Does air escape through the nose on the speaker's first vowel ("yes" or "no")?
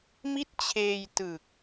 no